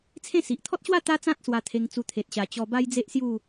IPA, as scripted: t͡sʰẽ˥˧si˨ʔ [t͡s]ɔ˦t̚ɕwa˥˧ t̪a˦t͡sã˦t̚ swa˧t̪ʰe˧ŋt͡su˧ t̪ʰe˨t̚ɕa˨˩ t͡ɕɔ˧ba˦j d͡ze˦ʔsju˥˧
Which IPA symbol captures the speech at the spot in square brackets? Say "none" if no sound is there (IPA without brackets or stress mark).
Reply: t̪ʰ